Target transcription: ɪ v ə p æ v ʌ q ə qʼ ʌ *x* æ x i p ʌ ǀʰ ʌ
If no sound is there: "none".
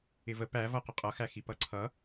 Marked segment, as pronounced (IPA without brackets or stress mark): x